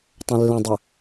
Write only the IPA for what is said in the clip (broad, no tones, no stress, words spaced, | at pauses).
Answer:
tˤɛ̃lːə̃dˤɵ